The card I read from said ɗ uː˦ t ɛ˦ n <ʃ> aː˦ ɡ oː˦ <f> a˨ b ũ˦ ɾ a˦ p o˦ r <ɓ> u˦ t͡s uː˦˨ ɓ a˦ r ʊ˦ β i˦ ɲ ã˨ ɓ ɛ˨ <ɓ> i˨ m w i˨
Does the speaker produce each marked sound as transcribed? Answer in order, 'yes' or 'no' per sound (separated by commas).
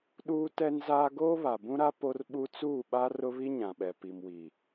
no, no, yes, no